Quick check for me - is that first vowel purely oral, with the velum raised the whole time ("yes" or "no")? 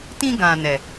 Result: no